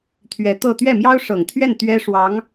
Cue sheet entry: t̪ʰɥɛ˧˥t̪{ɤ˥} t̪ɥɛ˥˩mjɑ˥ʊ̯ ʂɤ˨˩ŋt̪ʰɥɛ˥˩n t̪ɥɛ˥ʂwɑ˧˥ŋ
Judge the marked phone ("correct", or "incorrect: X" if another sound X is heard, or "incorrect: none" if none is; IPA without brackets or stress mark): incorrect: ɤ˥˧